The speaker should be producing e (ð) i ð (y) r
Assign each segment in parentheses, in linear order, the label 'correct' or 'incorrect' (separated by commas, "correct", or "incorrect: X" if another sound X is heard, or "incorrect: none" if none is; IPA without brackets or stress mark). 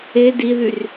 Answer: incorrect: d, correct